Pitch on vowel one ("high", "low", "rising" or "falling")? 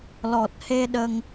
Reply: low